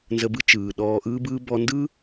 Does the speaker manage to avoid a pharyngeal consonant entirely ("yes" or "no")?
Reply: yes